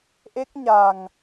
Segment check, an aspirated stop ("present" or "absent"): absent